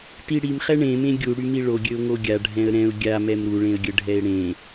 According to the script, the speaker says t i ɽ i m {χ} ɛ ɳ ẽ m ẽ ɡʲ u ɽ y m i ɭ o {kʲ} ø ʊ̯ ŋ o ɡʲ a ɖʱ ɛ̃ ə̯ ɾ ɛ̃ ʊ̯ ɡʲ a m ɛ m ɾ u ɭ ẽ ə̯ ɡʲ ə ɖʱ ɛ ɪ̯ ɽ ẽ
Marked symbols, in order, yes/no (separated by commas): yes, no